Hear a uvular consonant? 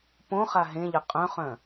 yes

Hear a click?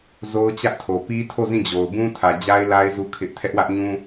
no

